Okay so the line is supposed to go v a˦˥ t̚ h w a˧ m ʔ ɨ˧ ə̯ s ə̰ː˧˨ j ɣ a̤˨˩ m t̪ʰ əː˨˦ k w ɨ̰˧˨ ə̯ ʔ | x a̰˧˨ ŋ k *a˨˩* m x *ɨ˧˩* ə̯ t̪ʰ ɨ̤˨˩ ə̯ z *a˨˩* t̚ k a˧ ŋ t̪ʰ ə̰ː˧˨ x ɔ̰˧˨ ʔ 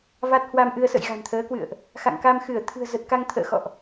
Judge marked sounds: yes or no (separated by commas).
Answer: no, yes, no